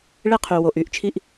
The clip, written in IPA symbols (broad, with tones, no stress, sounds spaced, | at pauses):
ɭ e˧ qʰ y˩ w o˩ ʔ y˥˩ ʔ t͡ʃʰ i˧ ʔ